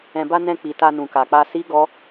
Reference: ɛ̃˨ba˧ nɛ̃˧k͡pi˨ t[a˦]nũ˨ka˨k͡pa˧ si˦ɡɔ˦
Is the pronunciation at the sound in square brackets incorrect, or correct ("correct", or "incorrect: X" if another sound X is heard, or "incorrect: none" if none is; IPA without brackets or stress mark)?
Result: incorrect: a˧